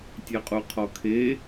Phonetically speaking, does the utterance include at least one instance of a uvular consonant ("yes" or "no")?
yes